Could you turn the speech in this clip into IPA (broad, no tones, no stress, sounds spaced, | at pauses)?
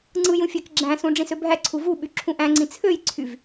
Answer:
ŋ͡ǀ ɯ j ũ fʲ æ k ɡ͡ǁ æ̃ s ũ ɖ͡ʐ ĩ s ø bʱ æ ǀʰ u v u ɓ y ǁʰ ũ ʔ æ̃ ŋ͡ǀ ĩ t͡sʰ ø j ǀʰ y v